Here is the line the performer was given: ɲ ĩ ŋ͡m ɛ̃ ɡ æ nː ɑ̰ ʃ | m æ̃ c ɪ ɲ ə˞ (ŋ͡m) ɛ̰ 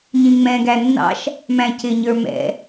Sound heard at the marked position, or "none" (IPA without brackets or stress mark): m